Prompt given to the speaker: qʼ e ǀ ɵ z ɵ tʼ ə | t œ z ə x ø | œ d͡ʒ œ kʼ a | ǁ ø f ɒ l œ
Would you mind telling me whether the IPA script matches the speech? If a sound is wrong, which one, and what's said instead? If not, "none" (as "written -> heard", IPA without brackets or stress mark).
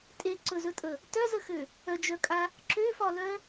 qʼ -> tʼ